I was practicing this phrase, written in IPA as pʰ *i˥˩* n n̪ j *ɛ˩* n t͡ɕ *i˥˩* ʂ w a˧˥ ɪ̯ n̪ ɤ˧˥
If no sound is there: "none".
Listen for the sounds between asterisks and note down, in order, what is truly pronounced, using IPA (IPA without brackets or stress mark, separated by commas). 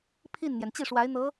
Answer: i˥˩, ɛ˩, i˥˩